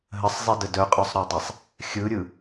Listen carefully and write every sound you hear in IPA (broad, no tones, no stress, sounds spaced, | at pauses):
ɦ ə sˤ zˤ i d ə d œ qʼ œ sˤ ɾ œ dˤ ɛ sˤ | xʲ ɯ ɾʲ ɯ